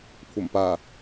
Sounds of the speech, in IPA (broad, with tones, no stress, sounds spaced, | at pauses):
kʷʰ ɐ˨˩ m p aː˨˩